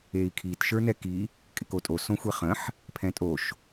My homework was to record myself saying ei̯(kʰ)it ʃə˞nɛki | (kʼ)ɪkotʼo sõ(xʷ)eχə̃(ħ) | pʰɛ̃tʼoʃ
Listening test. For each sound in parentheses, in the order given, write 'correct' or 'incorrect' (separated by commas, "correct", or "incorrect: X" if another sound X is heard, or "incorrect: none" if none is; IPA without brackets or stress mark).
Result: correct, correct, correct, correct